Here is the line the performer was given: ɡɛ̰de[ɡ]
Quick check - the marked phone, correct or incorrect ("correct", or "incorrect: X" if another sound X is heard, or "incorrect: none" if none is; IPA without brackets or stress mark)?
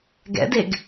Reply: correct